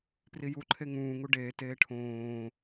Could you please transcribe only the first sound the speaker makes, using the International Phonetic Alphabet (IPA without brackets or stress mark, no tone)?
p